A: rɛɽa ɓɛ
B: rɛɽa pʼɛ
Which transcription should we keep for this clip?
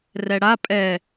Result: B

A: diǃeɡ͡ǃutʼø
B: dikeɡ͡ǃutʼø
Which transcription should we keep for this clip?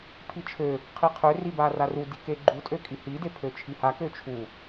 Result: B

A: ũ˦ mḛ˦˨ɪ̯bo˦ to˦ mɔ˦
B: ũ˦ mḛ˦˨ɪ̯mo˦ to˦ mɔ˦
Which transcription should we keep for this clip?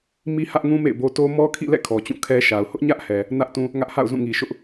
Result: A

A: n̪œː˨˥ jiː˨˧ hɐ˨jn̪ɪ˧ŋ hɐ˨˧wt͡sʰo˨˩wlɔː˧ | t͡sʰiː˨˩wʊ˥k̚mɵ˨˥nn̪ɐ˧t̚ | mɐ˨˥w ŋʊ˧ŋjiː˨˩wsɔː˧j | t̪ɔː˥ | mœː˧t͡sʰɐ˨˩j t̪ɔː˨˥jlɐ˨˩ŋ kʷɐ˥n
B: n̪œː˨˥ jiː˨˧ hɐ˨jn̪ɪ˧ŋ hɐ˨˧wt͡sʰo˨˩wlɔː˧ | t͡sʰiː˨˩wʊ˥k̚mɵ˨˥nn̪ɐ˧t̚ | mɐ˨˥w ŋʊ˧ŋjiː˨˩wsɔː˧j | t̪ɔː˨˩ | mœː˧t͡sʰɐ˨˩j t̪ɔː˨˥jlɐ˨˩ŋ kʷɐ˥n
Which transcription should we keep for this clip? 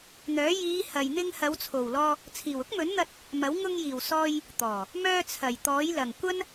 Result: B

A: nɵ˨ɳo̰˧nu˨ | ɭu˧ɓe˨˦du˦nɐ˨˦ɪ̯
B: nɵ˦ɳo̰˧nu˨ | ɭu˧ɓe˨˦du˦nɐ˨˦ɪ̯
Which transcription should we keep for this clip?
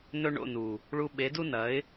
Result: B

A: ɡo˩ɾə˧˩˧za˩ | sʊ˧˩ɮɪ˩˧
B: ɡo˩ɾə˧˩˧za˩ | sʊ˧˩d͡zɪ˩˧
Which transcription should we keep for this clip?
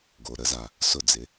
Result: B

